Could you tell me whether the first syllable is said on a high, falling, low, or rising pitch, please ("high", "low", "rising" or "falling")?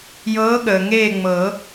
rising